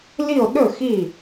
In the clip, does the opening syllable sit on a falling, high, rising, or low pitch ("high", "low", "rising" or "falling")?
falling